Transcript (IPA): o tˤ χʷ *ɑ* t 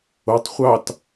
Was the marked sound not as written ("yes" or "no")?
no